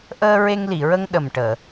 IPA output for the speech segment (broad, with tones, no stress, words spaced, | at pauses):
ʔəː˧ɹe˧ŋli˨˩˨ɹə˧ŋ ɗə˨˩mʈəː˨˩˨